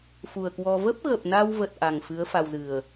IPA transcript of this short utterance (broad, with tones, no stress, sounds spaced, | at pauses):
f u˨˩ ə̯ k w ɔ˧ v ə˦˥ p̚ ɣ ə˨˩ p̚ n a˧ w v ə˨˩ t̚ ʔ a˨˩ ŋ f ɨ˨˦ ə̯ f a˧ w z ɨ˨˩ ə̯